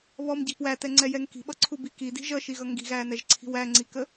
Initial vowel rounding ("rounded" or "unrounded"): rounded